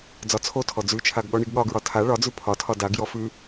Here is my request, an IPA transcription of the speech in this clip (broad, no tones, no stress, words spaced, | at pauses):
d͡zɒt͡sʰotʰɔ d͡zʉt͡ʃʰaɡ ɠɔɳiɡɠɒɡɹɒ tʰa ɭɒd͡zʉ pʰɒtʰɒ daɡjɔ fʉ